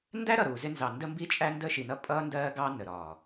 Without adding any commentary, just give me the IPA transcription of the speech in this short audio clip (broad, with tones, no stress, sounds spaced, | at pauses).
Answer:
n d æ˦ ɾ ʌ˨ ɾ uː˨ z ɪ˦ n z ɑ˨ n d ə˦ m b i˦ t͡ʃʼ æ˦ n d ə˦ ʃ i˨ n ʌ˦ pʼ ʌː˦ n d ɜː˦ ɡ ɑ˦ n ə˨ ɾ ɒː˨